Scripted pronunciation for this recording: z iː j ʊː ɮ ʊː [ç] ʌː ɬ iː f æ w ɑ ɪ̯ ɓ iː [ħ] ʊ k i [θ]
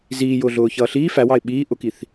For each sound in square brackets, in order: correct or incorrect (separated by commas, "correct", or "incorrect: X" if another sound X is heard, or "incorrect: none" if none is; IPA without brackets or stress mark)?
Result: correct, incorrect: ʔ, correct